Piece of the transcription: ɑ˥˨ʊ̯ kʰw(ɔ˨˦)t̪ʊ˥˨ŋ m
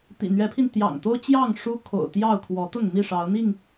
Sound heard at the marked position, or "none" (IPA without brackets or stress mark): ɔ˨˦